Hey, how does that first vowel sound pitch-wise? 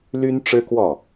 high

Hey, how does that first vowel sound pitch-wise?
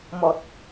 low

